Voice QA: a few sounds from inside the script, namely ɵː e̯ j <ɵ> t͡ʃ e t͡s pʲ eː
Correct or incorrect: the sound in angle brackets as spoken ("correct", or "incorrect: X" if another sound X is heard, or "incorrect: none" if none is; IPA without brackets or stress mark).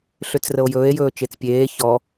incorrect: ɵː